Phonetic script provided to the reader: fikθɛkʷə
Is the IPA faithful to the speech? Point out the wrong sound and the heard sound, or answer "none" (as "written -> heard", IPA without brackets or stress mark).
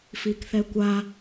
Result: ə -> a